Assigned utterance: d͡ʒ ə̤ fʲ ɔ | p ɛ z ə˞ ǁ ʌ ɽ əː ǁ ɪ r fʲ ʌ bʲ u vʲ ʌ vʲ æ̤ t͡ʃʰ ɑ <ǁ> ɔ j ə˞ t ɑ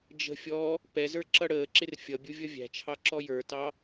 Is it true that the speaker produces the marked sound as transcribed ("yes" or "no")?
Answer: yes